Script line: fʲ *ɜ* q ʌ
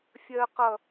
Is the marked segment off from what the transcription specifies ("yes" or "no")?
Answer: no